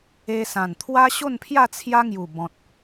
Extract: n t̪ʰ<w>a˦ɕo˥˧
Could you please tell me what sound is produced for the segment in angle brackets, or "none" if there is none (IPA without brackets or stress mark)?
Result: w